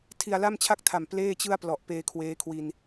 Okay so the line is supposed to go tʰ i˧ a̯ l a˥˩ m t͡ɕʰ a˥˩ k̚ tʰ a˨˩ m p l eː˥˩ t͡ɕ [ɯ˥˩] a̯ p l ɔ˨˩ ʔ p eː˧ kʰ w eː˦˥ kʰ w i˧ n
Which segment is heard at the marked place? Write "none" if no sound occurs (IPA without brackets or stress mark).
ɯ˥˩